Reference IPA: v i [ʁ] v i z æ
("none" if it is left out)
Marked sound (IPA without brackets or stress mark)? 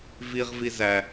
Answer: ʁ